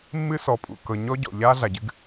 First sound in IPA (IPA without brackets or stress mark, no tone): mː